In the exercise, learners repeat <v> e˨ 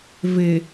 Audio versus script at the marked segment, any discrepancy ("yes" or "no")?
no